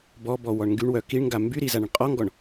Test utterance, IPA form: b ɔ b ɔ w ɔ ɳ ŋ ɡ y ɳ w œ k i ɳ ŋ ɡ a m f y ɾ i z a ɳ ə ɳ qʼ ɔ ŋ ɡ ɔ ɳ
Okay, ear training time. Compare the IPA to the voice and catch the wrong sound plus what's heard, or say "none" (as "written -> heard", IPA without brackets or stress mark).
f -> b